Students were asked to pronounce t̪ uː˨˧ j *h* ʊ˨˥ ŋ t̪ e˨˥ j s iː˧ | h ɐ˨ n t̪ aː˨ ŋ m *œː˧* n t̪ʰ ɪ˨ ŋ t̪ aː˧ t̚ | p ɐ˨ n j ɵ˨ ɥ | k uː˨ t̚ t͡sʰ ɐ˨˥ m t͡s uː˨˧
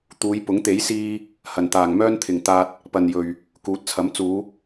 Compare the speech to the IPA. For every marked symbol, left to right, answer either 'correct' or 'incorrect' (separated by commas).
incorrect, incorrect